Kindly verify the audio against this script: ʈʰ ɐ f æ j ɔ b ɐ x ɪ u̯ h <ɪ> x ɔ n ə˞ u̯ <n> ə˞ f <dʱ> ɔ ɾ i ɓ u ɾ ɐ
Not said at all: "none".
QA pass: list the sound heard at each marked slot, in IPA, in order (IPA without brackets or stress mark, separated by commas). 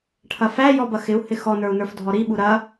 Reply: ɪ, n, dʱ